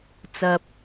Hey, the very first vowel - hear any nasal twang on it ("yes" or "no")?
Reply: no